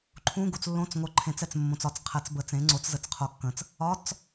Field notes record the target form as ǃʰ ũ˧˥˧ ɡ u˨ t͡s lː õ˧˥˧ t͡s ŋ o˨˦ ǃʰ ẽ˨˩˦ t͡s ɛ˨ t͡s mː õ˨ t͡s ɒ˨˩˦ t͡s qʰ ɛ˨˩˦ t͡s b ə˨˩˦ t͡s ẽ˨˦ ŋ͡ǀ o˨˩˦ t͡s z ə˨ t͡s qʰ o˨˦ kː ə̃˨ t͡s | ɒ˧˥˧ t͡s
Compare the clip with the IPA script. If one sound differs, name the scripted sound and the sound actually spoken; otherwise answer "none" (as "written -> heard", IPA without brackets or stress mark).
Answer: none